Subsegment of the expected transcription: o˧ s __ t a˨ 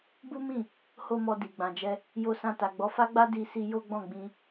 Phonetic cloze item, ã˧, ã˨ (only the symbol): ã˧